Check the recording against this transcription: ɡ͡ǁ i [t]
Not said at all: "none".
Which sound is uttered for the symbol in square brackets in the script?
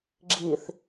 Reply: θ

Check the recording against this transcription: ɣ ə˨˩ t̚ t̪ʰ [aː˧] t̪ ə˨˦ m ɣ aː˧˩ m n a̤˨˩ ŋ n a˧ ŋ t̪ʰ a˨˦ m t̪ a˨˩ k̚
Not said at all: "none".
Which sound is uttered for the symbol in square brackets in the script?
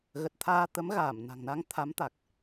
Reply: aː˧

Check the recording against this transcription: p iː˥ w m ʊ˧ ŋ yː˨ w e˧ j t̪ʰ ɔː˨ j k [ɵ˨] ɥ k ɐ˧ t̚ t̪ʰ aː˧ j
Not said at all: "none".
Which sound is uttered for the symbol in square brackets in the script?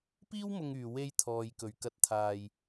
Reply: ɵ˨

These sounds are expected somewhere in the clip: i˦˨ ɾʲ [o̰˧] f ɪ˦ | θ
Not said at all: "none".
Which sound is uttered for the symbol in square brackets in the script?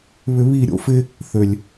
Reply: o̰˦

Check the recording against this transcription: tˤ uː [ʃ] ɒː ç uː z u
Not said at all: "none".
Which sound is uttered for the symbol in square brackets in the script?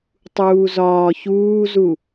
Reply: z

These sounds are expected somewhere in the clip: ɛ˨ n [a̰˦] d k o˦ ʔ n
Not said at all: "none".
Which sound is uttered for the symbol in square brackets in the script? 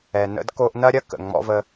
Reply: ə̰˦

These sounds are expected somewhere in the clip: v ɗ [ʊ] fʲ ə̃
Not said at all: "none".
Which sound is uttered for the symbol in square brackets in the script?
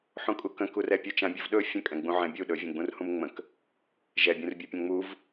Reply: ɵ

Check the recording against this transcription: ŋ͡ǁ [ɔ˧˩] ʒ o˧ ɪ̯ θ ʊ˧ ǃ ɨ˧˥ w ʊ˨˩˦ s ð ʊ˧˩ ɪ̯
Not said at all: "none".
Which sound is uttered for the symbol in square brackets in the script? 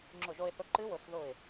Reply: ʊ˧˩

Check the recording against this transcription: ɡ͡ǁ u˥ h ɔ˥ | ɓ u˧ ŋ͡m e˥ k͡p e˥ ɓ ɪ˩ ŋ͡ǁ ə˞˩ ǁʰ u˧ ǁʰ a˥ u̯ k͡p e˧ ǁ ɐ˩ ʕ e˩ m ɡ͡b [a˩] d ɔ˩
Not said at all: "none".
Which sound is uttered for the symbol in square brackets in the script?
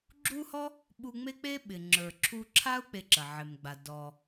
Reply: a˩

